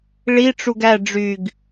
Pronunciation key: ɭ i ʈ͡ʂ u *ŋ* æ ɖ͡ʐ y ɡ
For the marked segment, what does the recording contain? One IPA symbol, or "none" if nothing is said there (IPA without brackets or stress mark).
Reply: ɡ